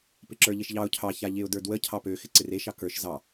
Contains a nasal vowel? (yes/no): no